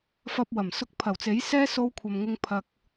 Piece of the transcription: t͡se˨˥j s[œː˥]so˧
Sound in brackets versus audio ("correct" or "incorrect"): incorrect